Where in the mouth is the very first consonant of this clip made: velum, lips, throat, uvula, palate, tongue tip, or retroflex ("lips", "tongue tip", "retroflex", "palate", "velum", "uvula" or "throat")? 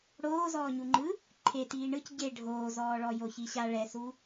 retroflex